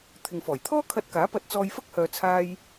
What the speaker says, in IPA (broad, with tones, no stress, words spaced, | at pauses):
t̪ʰɪ˨ŋfɔː˨˩j t̪ʰɔː˥kʰɐ˧t̚ kaː˨˥pɐ˧t̚ t͡sɔː˧jfɐ˥k̚hœː˨t͡sʰaː˧j